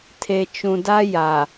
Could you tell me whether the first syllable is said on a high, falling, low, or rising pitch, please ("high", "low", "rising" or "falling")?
low